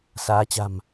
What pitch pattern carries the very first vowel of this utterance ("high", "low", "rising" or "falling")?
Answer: rising